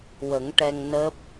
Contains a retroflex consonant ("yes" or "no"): yes